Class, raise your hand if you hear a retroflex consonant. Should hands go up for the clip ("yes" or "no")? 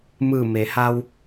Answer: no